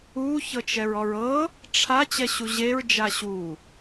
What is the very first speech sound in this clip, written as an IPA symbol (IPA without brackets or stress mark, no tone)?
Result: u